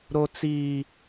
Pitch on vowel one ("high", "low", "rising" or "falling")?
high